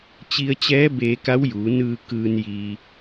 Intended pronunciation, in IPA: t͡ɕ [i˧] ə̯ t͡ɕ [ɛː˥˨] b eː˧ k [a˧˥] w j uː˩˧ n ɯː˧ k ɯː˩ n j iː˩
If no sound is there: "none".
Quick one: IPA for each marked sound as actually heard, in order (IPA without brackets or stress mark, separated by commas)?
i˧, ɛː˧˥, a˧˥